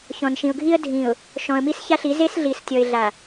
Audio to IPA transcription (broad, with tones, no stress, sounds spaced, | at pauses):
ç ɔ̃˨ n ʃ ĩ˨ ʊ̯ ɡʱ i˦ ə̯ dʱ ĩ˨ ʊ̯ | ʃ ɔ̃˨ ə̯ m i˦ s ç a˦ ɬ i˨˦ z e˦ s ɮ i˨ s tʲ ɔ˨ ɪ̯ ɮ a˨